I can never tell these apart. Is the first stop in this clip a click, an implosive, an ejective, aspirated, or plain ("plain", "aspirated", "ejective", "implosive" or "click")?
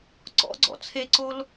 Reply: click